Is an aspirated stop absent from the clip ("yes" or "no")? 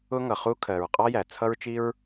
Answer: no